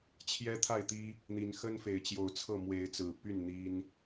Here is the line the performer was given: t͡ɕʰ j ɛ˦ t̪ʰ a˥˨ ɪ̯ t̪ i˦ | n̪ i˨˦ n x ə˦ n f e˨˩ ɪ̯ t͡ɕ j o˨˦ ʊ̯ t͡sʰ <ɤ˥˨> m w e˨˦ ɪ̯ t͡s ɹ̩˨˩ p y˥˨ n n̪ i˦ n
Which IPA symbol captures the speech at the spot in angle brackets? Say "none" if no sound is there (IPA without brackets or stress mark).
ɤ˥˨